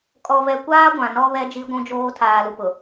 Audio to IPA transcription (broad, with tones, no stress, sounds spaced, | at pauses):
kʼ ɔ˨ v ɛ˨ kʷ aː˦ ɡʷ ã˨ n ɔ˦ β ɛ˦ d͡ʒ i˦ ɡʷ ũ˦ d͡ʒ oː˦ tʰ aː˨ l u˨ p ʊ˨